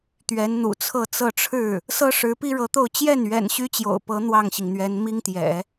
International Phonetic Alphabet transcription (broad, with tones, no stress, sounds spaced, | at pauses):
t̪ ɥ ɛ˧˥ n n̪ ṵ˨˩ t͡sʰ ɤ˥˧ t͡s ɤ˥˧ ʈ͡ʂʰ ɻ̩˥˩ | s ɤ˥ ʂ ɻ̩˧˥ p i˥ ɻ ɤ˧˥ t̪ o˥˧ ʊ̯ t͡ɕ j ɛ˥˩ n ɥ ɛ̰˨˩ n ɕ y˥ t͡ɕ j o̰˨˩ ʊ̯ p ɤ˧˥ n̪ w ɑ˥˩ ŋ ɕ i˩ ŋ n̪ ɥ ɛ˧˥ n m i˥ ŋ t̪ j ɛ̰˨˩˦